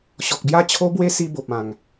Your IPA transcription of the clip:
ɕ ɔ˨ k̚ b j a˥˧ t͡ɕʰ o˦ b w e˦ s i˦ b o˨ p̚ ã˨˩ ŋ

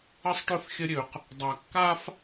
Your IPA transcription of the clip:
ə˦ sˤ ʈ ø˦ f xʲ ə˦ ɾʲ ø˨ q | dˤ a˨ kː a˦ f

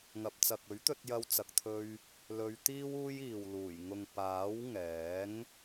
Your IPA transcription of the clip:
ŋ ɐ˨ p̚ t͡s ɐ˨ k̚ ɵ˨˥ ɥ t̪ ɵ˧ t̚ j ɐ˥ w t͡s ɐ˧ k̚ t̪ʰ ɵ˥ ɥ | l ɵ˨˧ ɥ t̪ iː˥ w uː˥ j iː˨ w l uː˨˩ j ŋ ʊ˨ ŋ p aː˨˥ w ŋ ɛː˨˥ ŋ

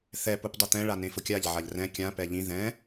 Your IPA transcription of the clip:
θ ɛ p u p dˤ u t̪ ɛ̃ ɭ a n ẽ f ʊ kʲ a ʎ ʕ a ʎ r ɛ̃ kʲ ã p ɛ ʎ ĩ ð ɛ̃

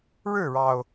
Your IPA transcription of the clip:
ɻ ɻ̩˥˩ ɻ ɑ˩ ʊ̯

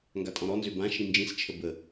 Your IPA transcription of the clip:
ŋ ɡ a tʼ ɔ̃ ɾ ɔ n z ø b ã ʃ ĩ n d͡ʒ ĩ s t͡ʃʰ ə b ə

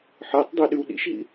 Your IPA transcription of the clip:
ħ əː tˤ dˤ e ɗ ʉ w ɗ ḭ ʃ ɦ ḭ

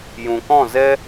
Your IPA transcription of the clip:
j ũ˨ k ɔ̃˦˨ z ɛ˦

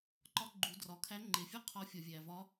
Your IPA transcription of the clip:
ǃ ɒ˧˥ ɡ͡ǃ u˩˧ d r ɒ˩ kʰ æ˧˥ ŋ͡ǃ e˩ fʲ ɒ˥ qʰ ɒ˧˥ fʲ ɒ˩ vʲ æ˩ v ɒ˧˥

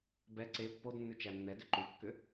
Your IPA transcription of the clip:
b ɛ ǀ e pː o d nː ʉ t͡ʃ æ nː ɛ d ʏ ǃ ʉ kː ʏ

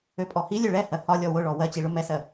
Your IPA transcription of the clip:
ø pʼ ɔ h i lʲ ø ɭ ɛ h ɜ h ɒ lʲ ɔ w ʊ ɭ ɔ w ɜ t͡ɕ i ɭ ʊ m ɛ s ɜ

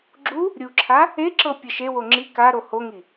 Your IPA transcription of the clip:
ɡ͡ǁ u | ɾʲ u ǁʰ a | e ǁ ɤ pʲ ɤ ʃ e w o ŋ͡ǁ i k a ɾ o h o ŋ i

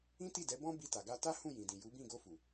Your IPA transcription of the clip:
ĩ˦ t i˦˨ d ɛ˨˦ b ɔ̃˦ b i˧ t a˨ ɡ a˧ t a˦ h ũ˦˨ j ĩ˨ d ĩ˨ j u˨˦ b ĩ˦˨ ɡ o˧ f u˨

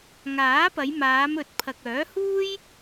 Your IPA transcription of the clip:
ŋ aː˨˥ p ɐ˨˧ j m aː˨˧ m ɵ˨˥ t̚ pʰ ɐ˨ k̚ œː˨˥ h uː˥ j

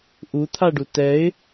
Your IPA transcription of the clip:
ʔ u t̪ʰ a ɖ u t ɛ ɪ̯

